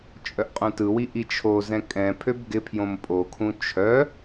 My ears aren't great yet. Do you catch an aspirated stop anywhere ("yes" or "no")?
yes